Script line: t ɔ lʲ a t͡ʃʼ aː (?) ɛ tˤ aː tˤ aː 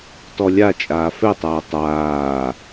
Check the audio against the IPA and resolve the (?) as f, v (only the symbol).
f